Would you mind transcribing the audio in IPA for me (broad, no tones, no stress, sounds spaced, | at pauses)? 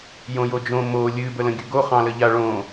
j õ j o d͡ʒ õ m o lʲ ɨ b ə l ə̃ ɡʲ ɵ ɡ o χ ɑ̃ l ə ʎ a ɭ õ